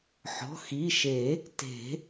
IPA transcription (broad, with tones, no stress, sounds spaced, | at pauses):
ħ ɔ̤˩˧˩ x i˩˧˩ ʃ e˨˩˦ | t e̤˨˩˦